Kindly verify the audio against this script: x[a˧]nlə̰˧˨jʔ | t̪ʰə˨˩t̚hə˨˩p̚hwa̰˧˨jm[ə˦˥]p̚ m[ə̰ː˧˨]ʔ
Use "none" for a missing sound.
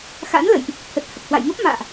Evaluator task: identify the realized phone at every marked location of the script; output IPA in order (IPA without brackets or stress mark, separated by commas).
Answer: a̰˧˥, ə˦˥, a̰ː˧˨